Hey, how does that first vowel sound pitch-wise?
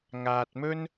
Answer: low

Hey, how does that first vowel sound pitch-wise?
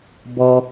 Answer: low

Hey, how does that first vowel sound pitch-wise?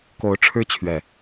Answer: rising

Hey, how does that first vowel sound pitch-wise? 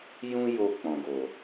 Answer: high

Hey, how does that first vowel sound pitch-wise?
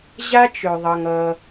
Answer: high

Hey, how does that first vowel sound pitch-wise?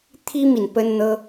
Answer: high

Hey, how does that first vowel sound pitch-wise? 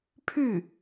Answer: falling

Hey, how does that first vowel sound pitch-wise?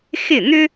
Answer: falling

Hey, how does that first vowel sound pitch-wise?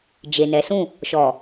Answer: low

